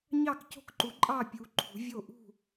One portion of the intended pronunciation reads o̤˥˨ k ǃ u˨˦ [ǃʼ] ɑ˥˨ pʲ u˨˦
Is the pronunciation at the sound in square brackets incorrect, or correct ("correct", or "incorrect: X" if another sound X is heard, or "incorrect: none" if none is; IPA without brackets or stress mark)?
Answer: correct